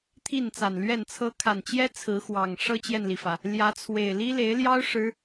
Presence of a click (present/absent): absent